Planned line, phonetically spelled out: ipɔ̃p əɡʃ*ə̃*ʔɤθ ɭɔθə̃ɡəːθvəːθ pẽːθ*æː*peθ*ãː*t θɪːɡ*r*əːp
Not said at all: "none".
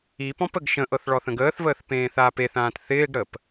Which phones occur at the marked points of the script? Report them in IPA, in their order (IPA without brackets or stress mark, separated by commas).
ə̃, aː, ãː, ɽ